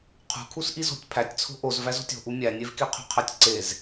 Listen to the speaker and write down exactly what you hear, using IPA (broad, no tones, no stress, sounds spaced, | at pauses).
qʰ ṳ kʰ u s ʔ i z o̤ tʲ pʰ æ tʲ t͡sʰ o̤ ʔ o z v æ z o̤ tʲ o̤ ʔ u mʲ æ nʲ e v k e qʰ ṳ qʰ æ tʲ ǀ e z